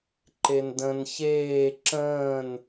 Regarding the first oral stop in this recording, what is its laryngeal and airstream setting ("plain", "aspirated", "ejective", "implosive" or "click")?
click